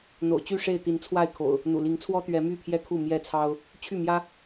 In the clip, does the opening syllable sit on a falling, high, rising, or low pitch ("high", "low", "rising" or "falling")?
low